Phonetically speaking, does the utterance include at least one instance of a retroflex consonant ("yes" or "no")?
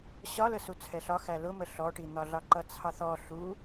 yes